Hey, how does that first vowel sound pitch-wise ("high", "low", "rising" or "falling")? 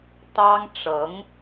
high